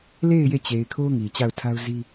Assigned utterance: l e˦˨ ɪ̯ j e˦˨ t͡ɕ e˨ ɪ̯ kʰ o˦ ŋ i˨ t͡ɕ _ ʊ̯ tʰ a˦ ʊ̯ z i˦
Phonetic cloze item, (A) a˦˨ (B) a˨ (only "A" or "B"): A